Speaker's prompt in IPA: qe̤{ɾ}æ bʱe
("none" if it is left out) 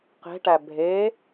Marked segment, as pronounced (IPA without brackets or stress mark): ʈ